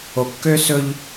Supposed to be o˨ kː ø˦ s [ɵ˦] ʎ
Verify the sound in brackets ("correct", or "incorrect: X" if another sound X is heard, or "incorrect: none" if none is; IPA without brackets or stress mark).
correct